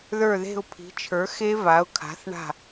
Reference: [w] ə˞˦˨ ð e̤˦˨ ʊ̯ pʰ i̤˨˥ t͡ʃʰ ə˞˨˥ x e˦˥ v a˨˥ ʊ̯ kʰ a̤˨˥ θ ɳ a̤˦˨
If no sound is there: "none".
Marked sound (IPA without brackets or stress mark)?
ð